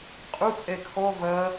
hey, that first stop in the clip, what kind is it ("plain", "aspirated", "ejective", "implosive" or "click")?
ejective